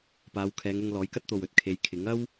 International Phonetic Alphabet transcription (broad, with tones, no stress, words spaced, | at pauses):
paː˨˧wkʰɛː˨˧ŋʊ˧ŋ lɔː˨˥jkɐ˥t̚t̪o˨w ɵ˨t̚kʰe˨˧jkʰɪ˨˥ŋ ɐ˥w